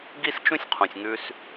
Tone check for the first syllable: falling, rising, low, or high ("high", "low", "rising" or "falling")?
high